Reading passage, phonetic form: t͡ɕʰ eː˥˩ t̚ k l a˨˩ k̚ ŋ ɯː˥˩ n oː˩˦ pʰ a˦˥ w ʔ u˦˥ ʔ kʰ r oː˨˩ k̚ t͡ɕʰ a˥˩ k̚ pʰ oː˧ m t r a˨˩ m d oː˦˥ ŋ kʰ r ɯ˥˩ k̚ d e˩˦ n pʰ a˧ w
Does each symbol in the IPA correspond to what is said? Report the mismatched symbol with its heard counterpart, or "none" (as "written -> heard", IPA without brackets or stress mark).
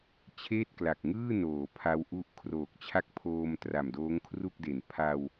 ɯ˥˩ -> u˥˩